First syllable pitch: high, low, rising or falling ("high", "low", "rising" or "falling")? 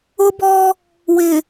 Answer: high